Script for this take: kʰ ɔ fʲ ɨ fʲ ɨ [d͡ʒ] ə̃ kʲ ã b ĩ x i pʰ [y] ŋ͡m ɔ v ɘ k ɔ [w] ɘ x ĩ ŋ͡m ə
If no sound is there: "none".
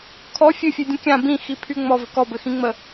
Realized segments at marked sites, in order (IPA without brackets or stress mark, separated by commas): dʲ, y, b